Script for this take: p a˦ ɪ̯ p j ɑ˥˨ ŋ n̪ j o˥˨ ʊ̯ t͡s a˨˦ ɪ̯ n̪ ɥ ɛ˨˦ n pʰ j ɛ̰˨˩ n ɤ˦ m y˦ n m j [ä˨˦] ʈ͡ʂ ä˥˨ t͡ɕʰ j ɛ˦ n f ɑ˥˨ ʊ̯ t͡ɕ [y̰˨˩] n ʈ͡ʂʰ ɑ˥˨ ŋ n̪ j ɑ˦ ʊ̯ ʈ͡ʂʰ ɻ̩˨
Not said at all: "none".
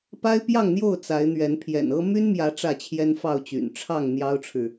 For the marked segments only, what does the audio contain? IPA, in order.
ä˨˦, y̰˨˩

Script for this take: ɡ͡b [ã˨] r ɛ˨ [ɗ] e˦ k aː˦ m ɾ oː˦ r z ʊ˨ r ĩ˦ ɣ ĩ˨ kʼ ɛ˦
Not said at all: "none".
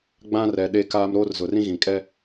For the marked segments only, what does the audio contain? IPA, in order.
ã˦, ɗ

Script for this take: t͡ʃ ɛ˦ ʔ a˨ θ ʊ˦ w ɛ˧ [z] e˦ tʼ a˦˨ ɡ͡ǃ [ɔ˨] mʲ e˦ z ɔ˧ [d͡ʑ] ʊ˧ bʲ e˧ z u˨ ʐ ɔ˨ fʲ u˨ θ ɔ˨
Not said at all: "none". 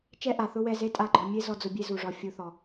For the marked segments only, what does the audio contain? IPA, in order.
z, ɔ˧, d͡z

